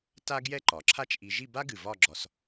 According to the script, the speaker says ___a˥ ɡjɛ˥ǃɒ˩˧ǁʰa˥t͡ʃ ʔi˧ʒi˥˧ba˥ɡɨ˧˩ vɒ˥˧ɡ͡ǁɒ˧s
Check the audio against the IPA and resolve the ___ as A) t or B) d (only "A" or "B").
A